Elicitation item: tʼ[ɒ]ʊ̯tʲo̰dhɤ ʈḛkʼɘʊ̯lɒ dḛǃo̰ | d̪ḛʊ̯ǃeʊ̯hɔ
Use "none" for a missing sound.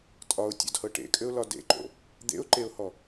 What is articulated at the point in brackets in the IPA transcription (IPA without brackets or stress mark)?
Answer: ɒ